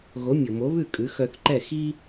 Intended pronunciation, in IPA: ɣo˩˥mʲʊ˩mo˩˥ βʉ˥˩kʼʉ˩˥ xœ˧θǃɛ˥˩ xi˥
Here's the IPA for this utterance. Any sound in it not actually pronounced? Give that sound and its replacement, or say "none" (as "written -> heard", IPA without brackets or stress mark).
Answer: none